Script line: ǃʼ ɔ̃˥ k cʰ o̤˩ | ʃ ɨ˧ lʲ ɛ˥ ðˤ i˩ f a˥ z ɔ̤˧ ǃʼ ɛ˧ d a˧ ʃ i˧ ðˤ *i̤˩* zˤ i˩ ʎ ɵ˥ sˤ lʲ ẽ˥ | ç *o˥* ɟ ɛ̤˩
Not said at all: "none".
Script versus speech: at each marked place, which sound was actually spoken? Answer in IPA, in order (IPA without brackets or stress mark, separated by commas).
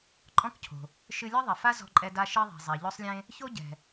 i̤˩, o˥